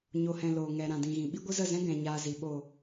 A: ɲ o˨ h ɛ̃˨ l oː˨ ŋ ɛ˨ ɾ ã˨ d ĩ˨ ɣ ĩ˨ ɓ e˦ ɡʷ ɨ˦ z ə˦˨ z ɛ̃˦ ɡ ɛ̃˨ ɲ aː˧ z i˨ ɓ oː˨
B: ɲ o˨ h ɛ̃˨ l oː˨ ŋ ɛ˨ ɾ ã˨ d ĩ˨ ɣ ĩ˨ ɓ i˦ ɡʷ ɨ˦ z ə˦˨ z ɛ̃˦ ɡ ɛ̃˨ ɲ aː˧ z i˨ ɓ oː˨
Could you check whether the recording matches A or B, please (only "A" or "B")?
B